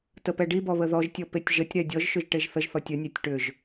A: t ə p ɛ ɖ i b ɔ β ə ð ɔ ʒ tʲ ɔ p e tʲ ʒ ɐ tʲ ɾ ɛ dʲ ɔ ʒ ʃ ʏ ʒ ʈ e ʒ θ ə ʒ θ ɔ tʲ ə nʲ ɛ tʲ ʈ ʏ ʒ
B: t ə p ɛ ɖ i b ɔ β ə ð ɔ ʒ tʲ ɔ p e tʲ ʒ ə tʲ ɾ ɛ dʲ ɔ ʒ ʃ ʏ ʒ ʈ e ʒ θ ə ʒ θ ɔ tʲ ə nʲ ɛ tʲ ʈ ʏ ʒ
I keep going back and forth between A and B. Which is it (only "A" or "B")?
B